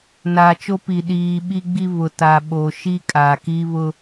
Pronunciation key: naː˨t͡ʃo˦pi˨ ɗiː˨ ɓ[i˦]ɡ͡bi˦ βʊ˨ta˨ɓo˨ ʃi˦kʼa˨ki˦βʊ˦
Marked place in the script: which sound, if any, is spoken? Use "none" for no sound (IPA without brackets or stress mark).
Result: i˦